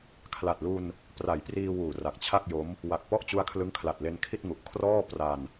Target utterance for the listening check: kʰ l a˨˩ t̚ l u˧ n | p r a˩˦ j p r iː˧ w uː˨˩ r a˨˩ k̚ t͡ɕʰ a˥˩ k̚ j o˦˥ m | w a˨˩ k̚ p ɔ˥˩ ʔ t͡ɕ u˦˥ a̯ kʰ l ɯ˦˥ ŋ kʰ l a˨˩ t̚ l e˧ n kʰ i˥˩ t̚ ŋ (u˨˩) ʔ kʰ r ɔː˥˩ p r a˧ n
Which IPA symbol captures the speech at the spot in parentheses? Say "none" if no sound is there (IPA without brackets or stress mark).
u˨˩